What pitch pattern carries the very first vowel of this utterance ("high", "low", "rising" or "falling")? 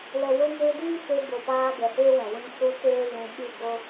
low